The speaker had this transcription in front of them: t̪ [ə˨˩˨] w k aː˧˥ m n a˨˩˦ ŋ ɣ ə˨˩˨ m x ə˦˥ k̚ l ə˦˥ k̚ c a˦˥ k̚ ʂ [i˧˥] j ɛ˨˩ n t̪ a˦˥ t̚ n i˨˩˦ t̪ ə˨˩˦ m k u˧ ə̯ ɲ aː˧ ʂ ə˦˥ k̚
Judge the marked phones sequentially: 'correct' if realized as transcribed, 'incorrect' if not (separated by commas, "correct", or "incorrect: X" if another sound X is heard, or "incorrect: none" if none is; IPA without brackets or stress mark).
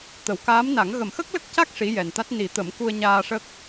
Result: correct, correct